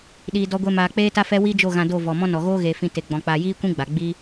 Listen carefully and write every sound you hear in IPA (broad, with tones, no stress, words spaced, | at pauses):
ɗiː˨dɔ˧ɡʷe˧maː˨ k͡peː˦ta˦fɛ˦ wi˦d͡ʒo˦˨ ɣã˧do˦˨vɔ˨ mɔ̃˦nɔ˨ ɣoː˦ɣeː˨ fĩ˧ te˨ɡ͡bɔ̃˨ k͡paː˨jiː˦kʷĩ˦ ɡ͡ba˨ ɡ͡biː˦